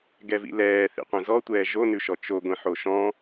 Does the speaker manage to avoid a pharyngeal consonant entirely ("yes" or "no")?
no